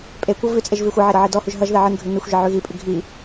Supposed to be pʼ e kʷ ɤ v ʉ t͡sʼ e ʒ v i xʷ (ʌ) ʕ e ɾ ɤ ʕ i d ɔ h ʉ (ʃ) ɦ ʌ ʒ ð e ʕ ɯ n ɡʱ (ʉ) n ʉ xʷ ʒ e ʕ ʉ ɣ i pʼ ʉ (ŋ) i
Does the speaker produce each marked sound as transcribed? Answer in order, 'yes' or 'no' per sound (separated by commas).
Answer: yes, no, yes, no